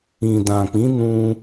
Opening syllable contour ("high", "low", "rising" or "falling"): low